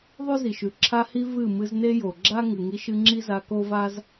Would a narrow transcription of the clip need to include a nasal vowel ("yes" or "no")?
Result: no